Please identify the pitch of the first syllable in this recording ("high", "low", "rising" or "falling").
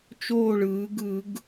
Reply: falling